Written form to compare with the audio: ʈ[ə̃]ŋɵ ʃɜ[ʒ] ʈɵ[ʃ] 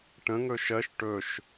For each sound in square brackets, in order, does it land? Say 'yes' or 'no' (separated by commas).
yes, no, yes